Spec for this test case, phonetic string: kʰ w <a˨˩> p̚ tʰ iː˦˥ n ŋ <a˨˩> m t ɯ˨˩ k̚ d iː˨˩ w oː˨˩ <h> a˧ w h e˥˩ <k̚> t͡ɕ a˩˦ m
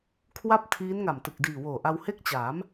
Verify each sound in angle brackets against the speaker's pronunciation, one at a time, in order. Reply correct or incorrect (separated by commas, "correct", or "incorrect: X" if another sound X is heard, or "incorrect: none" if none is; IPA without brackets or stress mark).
incorrect: a˥˩, correct, incorrect: ʔ, correct